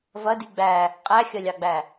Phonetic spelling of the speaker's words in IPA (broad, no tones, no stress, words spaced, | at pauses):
vɐdi ɡ͡bæ | qʼæxʲɐlʲɑɡ͡bæ